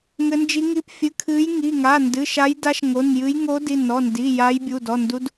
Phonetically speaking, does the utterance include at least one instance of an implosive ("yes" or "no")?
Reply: no